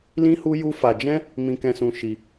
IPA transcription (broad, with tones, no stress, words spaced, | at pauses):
lĩ˦hu˦ju˦fa˧ d͡ʒɛ̃˦ | mĩ˧kɛ̃˧sũ˧ ʃi˧